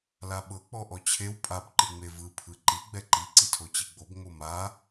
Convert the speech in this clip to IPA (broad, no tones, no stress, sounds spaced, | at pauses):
l a ɓ ɤ k͡p ɔ ʔ ɔ t͡ɕʰ e w pʼ a b ǃ ɯ ŋ͡m e v ɯ pʰ ɯ ǃ i ɡ͡b ɛ ǃ i ǀ i tʰ o t͡ɕ i ɡ͡b o b ŋ͡m o m a